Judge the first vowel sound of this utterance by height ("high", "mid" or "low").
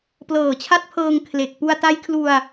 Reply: mid